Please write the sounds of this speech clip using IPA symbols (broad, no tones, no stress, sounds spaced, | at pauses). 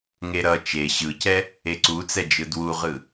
ŋ e ɾ ʌ t͡ʃ e ɕ ɯ c ɛ | e ǀ u t͡s ɛ d͡ʒ ɯ d w u ʁ ɯ